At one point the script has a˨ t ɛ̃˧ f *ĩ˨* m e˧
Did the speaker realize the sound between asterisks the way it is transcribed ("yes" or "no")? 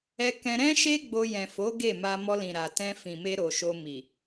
yes